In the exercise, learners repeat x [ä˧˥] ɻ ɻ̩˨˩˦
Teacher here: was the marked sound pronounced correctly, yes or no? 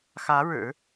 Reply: yes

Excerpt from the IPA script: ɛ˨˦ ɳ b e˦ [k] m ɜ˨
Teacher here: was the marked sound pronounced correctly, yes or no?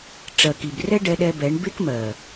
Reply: yes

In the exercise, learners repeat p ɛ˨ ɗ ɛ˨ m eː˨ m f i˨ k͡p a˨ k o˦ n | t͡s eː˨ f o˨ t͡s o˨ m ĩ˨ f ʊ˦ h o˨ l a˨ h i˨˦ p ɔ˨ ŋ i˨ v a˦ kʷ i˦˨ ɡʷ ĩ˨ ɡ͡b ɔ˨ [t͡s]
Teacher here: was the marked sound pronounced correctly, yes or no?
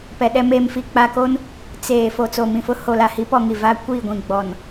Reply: no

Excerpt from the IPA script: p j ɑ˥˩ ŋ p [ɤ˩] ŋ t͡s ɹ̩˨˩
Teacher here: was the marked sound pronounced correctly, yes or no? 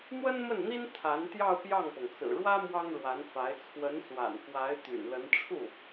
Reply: yes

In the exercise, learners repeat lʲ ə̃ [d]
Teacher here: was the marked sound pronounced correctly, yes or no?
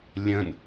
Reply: no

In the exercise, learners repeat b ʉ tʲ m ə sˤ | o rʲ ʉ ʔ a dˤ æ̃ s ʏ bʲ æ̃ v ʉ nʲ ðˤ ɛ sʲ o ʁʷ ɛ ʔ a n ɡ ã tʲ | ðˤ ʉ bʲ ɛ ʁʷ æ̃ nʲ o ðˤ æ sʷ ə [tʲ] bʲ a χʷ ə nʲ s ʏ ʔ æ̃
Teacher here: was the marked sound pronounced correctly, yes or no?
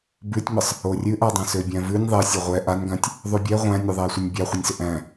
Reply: no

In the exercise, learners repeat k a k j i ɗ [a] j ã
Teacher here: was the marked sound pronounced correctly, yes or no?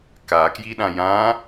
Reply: no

